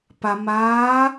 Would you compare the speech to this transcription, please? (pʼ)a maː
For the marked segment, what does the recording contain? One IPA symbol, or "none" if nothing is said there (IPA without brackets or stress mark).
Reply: p